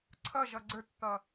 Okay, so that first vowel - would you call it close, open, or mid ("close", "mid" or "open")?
mid